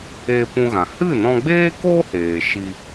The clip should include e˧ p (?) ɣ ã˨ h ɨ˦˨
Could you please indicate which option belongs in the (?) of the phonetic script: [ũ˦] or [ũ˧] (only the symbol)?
ũ˧